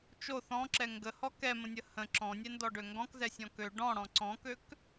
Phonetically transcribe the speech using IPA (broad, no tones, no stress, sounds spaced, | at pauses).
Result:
t͡ʃ o θ ɔ̃ ǁ ɛ ŋ ɡ ə h ɔ k ɛ m ə̃ nʲ ə h ə̃ ǁ ɔ̃ nʲ ɛ n d ɔ ɖ ø ŋ ɡ ɔ̃ k z ɛ sʲ ɔ̃ k ø ɖ ɔ̃ ɽ ɔ̃ ǀ ɔ̃ k ø k